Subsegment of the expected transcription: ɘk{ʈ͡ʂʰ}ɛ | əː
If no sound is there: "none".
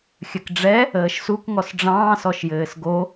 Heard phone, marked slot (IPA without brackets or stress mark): ɖ͡ʐ